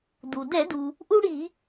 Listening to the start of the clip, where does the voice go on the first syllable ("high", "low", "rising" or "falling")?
low